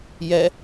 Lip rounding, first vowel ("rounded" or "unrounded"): unrounded